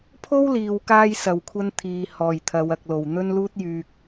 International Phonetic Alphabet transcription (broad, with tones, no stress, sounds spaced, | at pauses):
pʰ o˥ w l iː˨ w k aː˧ j s ɐ˨ w kʷʰ ɐ˥ n t̪ʰ iː˨ h ɔː˨˩ j t̪ʰ ɐ˨˧ w ɐ˨ k̚ l o˨˩ w n̪ ɵ˥ n l uː˥ t̚ j yː˨ k̚